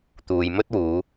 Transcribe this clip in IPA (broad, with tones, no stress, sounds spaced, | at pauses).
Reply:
t̪ uː˨ j m ɵ˥ t̚ w uː˨˧